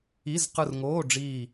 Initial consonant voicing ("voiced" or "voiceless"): voiced